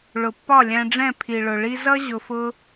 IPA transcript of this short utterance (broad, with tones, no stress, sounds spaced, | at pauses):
ɭ ʊ˨ pː ɒ˦˨ lʲ æ̃˧ ɖ͡ʐ ɛ̃˦˨ pʰ i˨ ɭ ʊ˨ ɭ i˧ z ʌ˦ ʑ ʊ˧ f ʊ˦